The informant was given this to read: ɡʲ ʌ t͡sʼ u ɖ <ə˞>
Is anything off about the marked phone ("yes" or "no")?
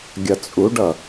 yes